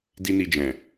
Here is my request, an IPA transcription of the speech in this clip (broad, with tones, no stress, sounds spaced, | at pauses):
d i˦ n i˧ d͡ʒ ɛ̃˨